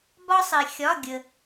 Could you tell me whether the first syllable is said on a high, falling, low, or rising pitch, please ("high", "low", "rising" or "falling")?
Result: high